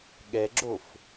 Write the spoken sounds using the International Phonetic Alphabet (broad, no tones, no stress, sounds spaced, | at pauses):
ɠ ɛ ɡ͡ǁ o f